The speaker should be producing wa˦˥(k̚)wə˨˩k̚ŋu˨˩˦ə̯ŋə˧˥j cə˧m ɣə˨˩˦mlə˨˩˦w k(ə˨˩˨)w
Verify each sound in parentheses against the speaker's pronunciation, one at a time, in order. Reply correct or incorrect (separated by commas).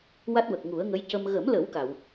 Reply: incorrect, incorrect